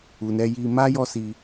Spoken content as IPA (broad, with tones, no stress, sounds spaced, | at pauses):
u˨ n ɛ˧ j i˧ m a˦ j ɔ˦ s i˧